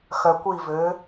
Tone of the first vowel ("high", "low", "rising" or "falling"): low